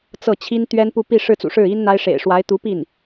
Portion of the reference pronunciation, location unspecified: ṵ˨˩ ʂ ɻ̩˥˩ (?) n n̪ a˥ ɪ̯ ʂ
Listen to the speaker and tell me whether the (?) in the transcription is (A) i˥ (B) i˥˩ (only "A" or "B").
A